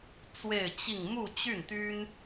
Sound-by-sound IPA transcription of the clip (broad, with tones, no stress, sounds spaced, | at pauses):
t͡s w e˥˧ ɪ̯ t͡ɕ i˥˧ ŋ m u˥˧ t͡ɕ y˥˩ n t̪ y˥ n